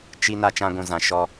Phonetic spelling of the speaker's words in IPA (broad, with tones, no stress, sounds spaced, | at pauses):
t͡ʃ i˦ n a˦ t͡ʃ ã˦ ɡʷ ũ˧ z ã˧ ʃ ɔ˧